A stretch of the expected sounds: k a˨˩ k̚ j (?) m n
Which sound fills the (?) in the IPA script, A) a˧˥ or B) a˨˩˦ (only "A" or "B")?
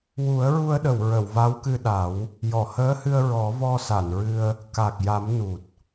B